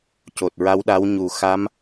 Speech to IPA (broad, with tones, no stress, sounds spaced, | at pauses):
c o˨˩ t̚ ɹ a˧˥ w ɗ a˧˥ w ɲ u˨˩ x a˧˥ m